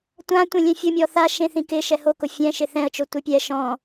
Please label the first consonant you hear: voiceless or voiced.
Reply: voiceless